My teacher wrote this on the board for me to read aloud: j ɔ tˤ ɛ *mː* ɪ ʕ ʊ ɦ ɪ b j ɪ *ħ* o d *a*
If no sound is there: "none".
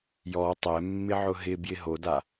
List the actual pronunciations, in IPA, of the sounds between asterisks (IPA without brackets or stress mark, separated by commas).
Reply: mː, ɦ, a